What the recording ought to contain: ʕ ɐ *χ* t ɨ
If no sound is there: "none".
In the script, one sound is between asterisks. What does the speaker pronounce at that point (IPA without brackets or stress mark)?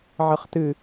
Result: χ